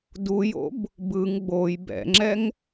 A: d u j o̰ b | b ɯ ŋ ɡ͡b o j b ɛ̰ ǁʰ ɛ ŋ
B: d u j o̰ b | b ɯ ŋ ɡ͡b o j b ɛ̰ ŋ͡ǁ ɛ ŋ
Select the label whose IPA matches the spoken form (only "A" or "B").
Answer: B